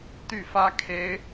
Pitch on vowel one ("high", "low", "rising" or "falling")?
falling